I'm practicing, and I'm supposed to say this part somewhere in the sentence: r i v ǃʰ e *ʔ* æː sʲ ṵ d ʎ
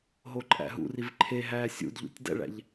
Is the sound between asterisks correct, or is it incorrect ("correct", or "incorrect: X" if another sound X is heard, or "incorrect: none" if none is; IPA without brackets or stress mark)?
incorrect: ɦ